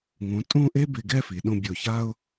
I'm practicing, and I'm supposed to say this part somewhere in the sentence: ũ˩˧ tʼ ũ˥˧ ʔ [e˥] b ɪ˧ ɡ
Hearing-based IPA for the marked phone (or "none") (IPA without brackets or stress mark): e˥